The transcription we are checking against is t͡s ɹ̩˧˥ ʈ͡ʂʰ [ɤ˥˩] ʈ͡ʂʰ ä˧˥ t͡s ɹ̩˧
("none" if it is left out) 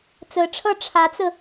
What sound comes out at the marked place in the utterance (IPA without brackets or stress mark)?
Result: ɤ˥˩